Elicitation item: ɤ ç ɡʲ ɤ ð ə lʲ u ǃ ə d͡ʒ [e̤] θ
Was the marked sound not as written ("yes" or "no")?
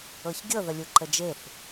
yes